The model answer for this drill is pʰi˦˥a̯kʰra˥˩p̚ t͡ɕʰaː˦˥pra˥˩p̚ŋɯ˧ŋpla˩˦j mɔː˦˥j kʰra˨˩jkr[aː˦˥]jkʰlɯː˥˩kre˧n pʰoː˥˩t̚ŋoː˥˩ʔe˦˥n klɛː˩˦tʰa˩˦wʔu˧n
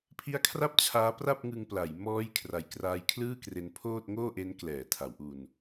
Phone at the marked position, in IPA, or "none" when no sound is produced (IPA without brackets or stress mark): aː˧